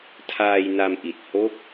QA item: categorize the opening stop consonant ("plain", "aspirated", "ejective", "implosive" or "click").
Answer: aspirated